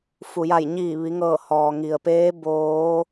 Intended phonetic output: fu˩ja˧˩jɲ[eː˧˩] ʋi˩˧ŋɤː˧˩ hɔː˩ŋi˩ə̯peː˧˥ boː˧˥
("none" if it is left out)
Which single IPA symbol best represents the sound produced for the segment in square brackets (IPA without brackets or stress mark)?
iː˧˩